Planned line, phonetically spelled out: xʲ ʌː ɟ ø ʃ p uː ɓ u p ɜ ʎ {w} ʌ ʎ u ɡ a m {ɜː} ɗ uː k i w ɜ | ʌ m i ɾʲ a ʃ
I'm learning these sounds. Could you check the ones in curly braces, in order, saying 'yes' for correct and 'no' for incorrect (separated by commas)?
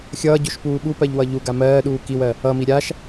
yes, yes